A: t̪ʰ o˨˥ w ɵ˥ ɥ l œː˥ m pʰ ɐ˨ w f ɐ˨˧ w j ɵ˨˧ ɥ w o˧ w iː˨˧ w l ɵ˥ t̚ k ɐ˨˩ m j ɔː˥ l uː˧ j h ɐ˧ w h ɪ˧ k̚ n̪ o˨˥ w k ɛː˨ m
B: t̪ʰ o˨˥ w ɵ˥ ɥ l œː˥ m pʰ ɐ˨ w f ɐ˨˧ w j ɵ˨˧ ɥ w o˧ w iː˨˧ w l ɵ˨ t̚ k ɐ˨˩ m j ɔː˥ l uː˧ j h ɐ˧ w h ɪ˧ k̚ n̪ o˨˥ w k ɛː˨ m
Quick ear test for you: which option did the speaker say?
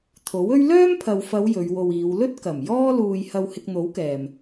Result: A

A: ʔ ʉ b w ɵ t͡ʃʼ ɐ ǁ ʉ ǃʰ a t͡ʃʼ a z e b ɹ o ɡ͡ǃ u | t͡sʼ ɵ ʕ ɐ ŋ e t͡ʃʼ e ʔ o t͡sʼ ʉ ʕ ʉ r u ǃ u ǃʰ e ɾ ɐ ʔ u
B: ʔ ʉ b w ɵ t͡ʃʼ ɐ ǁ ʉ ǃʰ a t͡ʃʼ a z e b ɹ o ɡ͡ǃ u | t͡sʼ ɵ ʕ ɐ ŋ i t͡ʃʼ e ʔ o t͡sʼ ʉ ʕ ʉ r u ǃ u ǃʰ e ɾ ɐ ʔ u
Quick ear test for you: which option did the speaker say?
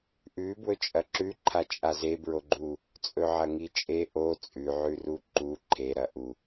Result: B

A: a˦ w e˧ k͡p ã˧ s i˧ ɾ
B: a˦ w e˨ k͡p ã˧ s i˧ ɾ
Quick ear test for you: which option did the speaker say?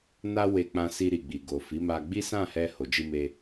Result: A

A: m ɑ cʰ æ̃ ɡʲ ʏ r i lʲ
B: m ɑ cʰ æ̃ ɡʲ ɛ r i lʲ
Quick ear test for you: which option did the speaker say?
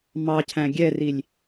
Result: B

